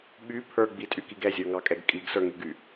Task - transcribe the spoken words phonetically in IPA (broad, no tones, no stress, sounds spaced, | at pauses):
ɓ y pʰ ə˞ ɡ͡b i tʼ y k i ɡ ɛ zʲ ə˞ ŋ ɑ kʼ ɛ ɡ kʼ i ɡ s ə˞ ŋ y ɡ y